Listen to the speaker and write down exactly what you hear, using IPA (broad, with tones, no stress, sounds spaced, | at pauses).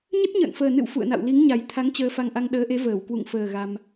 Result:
ɲ ə˦˥ t̚ ɲ ə̰ː˧˨ n f əː˨˩ n ɨ̰˧˨ w f ṵ˧˨ ə̯ n a̰˧˨ w l i˨˦ ŋ ɲ a˨˩ j t̪ʰ a˨˦ ŋ t͡ɕ əː˧ f a˧ ŋ ʔ a˧ ŋ ɗ əː˨˦ ʔ e˨˦ v əː˧˩ w k w ṵ˧˨ ŋ f əː˨˩ ɣ a˧ m